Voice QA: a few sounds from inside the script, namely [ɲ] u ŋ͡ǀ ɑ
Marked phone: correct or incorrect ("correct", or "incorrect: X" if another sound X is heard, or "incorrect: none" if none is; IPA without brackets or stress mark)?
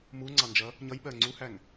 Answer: incorrect: m